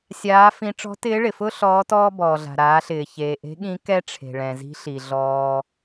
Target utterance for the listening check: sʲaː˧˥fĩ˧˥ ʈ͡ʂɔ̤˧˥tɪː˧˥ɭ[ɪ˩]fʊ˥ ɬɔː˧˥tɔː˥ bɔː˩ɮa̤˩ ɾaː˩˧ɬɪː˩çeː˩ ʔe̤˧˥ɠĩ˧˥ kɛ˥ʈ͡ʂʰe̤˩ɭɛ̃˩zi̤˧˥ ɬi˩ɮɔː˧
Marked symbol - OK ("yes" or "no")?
yes